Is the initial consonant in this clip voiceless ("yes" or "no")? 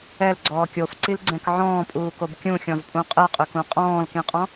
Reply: no